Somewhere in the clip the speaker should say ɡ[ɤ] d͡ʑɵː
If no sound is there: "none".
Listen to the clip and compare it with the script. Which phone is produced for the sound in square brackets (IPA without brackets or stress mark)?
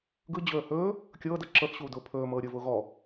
ɯ